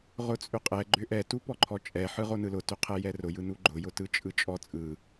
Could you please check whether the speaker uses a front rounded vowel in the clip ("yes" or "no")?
yes